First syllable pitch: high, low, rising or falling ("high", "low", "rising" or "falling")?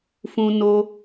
high